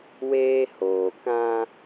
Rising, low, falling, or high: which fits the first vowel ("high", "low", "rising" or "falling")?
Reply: high